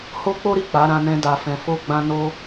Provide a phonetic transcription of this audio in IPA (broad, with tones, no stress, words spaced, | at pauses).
ho˦k͡po˦ɾi˦˨ k͡pa˨˦ɾã˧nɛ̃˧ da˨fɛ̃˨fo˧ ɡ͡bã˧no˧